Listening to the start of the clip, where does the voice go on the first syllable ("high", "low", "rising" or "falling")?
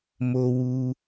low